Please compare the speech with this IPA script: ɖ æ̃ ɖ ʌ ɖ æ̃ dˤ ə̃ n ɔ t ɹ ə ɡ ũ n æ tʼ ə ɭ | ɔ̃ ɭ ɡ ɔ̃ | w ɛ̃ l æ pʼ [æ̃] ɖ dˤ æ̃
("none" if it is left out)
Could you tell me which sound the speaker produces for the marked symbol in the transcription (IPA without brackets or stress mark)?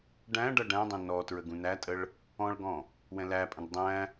ə̃